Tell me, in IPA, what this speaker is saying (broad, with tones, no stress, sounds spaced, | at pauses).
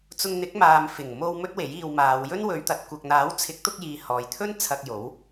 t͡s ʊ˧ ŋ n̪ ɪ˨˥ k̚ m aː˧ m f ɪ˨˩ ŋ m o˧ w m ɵ˥ t̚ w e˨˥ j iː˧ w m aː˨˧ w j ɵ˥ n w ɵ˨˧ ɥ t̪ ɐ˨ t̚ kʷ ɐ˨ k̚ n̪ aː˨˥ w t͡sʰ ɪ˨˥ k̚ t̪ ʊ˧ k̚ j iː˨ h ɔː˨ j t̪ʰ ɵ˥ n t͡sʰ ɐ˧ k̚ j o˨˥ w